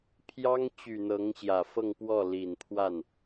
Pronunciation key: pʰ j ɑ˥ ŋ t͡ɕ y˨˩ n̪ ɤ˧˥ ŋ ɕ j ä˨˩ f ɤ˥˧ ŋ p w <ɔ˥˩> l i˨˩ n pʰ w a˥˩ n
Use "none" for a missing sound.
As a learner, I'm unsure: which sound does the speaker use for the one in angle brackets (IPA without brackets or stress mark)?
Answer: ɔ˥˩